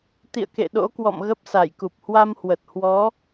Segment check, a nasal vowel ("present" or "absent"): absent